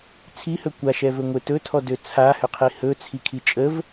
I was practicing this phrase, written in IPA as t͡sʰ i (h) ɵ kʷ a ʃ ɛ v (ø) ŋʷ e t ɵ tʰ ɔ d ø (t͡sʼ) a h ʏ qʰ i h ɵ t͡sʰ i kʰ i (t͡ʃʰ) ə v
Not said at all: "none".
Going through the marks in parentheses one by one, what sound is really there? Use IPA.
h, ɵ, t͡sʰ, t͡ʃʼ

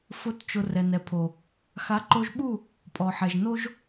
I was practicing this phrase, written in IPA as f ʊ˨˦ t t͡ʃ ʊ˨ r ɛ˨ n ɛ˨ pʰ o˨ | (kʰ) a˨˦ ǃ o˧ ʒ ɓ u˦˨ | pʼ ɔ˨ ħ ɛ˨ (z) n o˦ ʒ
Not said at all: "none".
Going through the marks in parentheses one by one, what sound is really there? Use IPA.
x, ʒ

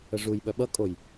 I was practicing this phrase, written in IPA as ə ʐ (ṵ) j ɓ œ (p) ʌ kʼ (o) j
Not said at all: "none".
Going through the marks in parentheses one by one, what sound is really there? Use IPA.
u, ɓ, o

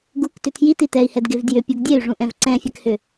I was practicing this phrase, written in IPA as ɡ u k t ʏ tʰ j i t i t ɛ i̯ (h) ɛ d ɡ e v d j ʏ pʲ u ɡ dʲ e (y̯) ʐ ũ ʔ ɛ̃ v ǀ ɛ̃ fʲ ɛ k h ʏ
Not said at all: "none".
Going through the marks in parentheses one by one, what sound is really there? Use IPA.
h, y̯

